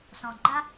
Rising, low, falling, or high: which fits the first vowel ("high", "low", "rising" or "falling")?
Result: low